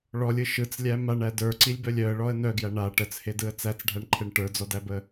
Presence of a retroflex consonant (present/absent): present